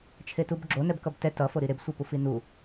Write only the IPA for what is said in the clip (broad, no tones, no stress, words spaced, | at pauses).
t͡ʃʰetubɡ͡ǁo nɛbkʌbtɛ tʌ foɾiɾeb sʷepufinu